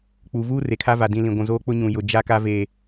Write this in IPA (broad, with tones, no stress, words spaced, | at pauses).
k͡pu˨vuː˦ re˨kʰa˦va˨ dĩ˨ lĩ˨ɡʷũ˨zoː˦k͡pʊ˦ ɲũ˨jʊ˨ d͡ʒa˦ka˦ veː˨